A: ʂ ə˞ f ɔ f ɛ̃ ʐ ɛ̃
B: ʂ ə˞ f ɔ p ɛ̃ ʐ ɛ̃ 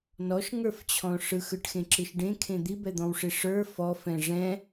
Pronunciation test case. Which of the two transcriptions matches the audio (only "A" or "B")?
A